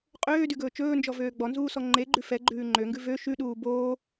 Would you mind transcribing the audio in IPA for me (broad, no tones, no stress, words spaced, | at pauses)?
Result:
qʼøːdyɡɵː t͡ʃɵːnd͡ʒɔvøː ɡ͡bɔnzuːsɔ ŋ͡ǃeɡ͡ǃʉ fɛɡ͡ǃʉː ŋ͡ǃøŋɡʉ vø ʃʉɗuː boː